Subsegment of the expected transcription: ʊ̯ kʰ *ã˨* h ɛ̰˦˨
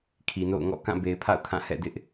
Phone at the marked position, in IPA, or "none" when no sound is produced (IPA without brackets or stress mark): ã˦˨